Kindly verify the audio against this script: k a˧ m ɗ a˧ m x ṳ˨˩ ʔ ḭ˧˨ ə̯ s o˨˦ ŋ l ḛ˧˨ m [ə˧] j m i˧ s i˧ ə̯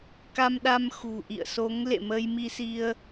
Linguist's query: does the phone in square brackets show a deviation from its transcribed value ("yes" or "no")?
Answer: no